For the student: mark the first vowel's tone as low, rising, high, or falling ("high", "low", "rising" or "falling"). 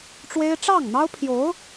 high